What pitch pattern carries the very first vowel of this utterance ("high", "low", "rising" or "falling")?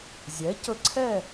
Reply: rising